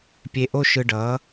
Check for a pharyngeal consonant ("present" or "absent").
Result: absent